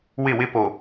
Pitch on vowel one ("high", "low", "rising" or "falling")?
falling